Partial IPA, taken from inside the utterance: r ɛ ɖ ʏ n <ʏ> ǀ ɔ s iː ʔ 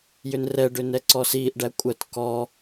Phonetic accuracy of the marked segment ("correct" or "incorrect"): incorrect